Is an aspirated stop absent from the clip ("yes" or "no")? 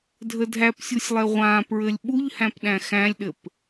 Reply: yes